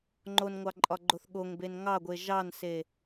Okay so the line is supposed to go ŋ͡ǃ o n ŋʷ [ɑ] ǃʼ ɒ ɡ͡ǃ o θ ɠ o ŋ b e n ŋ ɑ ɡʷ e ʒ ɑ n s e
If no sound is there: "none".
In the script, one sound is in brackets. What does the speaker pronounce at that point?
ɑ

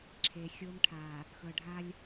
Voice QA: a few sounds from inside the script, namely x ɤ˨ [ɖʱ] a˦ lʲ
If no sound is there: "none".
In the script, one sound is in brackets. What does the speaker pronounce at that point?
ɖʱ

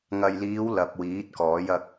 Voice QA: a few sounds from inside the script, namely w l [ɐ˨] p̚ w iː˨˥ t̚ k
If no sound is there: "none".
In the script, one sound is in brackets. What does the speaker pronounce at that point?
ɐ˨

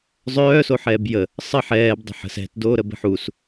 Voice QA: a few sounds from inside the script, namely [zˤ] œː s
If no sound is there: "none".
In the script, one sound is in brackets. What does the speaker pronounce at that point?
zˤ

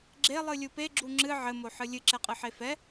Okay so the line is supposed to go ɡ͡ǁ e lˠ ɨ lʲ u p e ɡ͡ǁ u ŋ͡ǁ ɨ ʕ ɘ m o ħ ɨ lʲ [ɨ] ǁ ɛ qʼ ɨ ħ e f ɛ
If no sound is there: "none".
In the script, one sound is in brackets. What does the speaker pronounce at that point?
ɨ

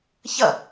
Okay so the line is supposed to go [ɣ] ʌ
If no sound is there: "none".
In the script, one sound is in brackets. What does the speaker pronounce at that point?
ç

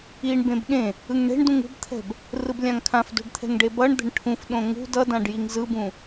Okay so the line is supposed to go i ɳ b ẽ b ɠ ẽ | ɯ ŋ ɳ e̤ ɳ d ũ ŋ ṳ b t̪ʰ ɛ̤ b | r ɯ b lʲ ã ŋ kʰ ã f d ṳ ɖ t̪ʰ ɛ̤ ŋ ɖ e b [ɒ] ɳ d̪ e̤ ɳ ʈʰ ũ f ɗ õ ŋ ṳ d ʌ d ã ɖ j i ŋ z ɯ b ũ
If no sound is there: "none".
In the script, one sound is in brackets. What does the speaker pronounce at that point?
ʌ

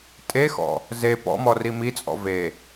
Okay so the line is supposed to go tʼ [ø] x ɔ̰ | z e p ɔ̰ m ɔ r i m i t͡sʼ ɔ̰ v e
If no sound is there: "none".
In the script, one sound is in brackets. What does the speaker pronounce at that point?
e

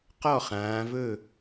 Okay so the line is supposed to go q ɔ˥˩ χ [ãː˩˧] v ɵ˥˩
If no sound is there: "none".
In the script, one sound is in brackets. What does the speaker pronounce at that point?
ãː˩˧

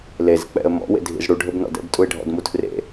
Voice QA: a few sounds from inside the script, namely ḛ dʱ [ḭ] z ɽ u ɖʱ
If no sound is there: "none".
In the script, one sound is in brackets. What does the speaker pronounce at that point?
ḭ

